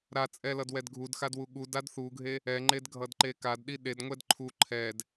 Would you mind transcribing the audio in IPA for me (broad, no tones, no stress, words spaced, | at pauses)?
ɾat͡sʼɛlʌd wɛdɡʱudxadwu ɠud adθuɡʱe | ɛŋ͡ǃedɡʱʌd ǃekadɗi ɗedŋʷɛd ǃʰu ǃʰɛd